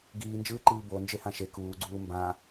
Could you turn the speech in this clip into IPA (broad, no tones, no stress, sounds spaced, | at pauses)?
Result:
ɡ iː n d͡ʒ ɯː ǃ iː b o n d͡ʒ e h ã ʃ e k uː ɡ͡ǀ uː m b ã